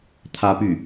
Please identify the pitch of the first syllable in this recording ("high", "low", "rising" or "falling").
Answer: high